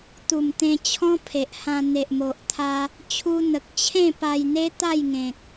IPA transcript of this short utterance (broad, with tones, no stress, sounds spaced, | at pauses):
t̪ u˨˩ m t̪ ẽ˧ t͡ɕʰ ɔ̃˦ pʰ e˨ ʔ h ã˧ n̪ e˨ ʔ m o˨ ʔ t̪ʰ a˦ | t͡ɕʰ u˧ n̪ ə˨ k̚ t͡ɕʰ ẽ˥˧ p a˧ j n̪ e˦ t̪ a˥˧ j ŋ ẽ˨ k̚